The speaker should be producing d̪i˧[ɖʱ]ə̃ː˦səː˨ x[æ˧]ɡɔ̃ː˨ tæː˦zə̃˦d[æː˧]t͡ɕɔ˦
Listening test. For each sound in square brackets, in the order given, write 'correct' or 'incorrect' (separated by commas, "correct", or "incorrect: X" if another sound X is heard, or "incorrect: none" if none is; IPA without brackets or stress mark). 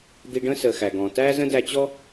incorrect: ɖ, incorrect: æ˨, incorrect: æ˧